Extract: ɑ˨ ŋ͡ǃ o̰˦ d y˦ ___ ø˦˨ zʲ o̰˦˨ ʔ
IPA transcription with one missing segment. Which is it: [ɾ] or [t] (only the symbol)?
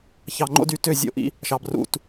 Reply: t